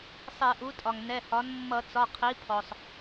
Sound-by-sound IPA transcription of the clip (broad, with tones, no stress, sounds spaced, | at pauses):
sˤ ɛ˧˩˧ ʔ u˩˥ tʼ ɒ˩ ŋ n ɛ˩˧˩ h ɒ˩˥ n mː ʌ˧˩˧ t͡s ɒ˩˧˩ qʰ i˩˥ pʰ ɔ˩ sˤ